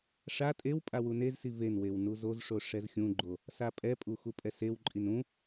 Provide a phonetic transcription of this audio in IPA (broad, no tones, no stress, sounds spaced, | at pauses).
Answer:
ʂ a tʼ e w pʼ a w u n e z s i v e n w e w n u z o z ʂ o ʂ ɛ z xʲ ũ ɡ͡ǃ o | s a pʼ ɛ pʼ u x u pʼ ɛ s e w ǃʼ i n ũ